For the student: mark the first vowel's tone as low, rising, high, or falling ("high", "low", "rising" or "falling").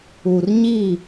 low